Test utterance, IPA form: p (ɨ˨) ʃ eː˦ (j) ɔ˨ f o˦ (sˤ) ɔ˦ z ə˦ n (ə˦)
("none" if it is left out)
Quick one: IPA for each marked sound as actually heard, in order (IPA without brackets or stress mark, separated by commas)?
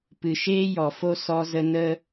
ɨ˨, j, s, ə˦